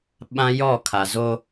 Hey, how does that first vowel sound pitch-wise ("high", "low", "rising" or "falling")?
high